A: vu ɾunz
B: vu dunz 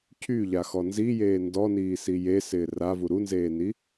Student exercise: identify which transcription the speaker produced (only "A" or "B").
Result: A